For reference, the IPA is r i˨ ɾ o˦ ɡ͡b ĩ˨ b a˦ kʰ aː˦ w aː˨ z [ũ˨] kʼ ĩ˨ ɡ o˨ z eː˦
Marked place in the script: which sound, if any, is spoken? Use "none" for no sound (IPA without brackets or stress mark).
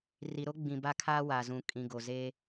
ũ˨